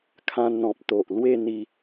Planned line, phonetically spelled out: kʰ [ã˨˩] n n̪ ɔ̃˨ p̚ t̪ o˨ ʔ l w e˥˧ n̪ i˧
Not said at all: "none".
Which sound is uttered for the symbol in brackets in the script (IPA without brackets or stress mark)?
ã˧